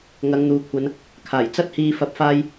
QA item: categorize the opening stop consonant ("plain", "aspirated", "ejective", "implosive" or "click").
aspirated